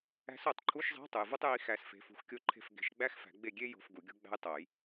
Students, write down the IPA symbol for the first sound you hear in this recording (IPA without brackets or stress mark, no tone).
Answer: æ̤